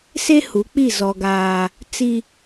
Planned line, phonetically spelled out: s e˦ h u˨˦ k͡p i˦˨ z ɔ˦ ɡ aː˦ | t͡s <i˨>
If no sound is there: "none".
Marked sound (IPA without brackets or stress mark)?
i˦